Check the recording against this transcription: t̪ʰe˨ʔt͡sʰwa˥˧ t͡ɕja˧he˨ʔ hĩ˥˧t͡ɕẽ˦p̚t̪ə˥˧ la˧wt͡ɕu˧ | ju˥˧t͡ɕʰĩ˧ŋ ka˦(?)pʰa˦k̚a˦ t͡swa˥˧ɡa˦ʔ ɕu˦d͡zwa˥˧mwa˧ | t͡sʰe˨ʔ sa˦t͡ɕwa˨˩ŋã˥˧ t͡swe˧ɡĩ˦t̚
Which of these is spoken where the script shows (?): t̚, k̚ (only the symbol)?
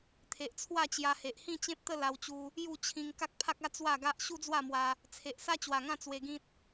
k̚